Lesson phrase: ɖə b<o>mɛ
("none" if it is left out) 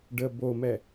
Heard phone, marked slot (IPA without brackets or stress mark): o